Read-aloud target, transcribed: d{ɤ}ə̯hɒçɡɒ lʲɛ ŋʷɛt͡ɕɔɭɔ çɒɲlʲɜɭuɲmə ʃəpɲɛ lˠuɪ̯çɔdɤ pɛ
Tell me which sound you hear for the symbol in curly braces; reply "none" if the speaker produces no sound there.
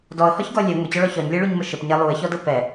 ɔ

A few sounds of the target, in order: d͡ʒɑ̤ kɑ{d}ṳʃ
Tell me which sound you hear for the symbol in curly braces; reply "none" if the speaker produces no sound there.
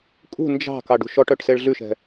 ɖ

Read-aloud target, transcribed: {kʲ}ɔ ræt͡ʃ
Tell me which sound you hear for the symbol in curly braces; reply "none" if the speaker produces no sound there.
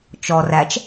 t͡ʃ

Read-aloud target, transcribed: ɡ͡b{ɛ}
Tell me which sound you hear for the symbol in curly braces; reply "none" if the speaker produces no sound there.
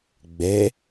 ɛ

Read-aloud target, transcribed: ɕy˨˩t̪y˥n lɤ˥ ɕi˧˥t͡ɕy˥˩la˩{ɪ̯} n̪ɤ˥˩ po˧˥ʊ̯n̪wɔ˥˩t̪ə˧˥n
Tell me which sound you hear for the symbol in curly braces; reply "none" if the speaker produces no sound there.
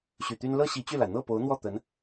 ɪ̯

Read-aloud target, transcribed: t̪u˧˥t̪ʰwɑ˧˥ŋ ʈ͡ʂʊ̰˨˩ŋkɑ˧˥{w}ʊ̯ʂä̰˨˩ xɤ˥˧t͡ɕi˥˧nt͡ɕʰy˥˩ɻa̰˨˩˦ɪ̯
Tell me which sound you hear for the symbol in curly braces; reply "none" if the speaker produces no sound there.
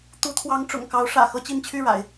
none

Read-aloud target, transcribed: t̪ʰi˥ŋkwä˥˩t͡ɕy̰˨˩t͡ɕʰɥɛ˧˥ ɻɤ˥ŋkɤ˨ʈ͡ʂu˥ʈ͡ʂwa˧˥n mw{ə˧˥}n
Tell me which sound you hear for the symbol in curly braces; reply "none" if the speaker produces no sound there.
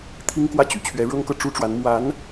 a˧˥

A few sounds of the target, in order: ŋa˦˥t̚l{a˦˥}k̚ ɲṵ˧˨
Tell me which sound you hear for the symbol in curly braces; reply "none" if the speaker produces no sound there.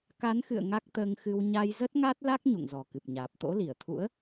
a˦˥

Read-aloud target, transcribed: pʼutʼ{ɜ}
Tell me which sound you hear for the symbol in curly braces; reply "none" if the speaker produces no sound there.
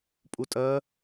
ɜ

